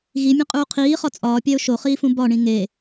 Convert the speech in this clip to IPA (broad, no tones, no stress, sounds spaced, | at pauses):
ɣ i mʲ ẽ qʼ uː qʰ iː χ ɒ t͡sʼ ɒː pʲ æ ʊ̯ ʃ o χ iː f ũ b ɒ ɳ ĩ ŋ e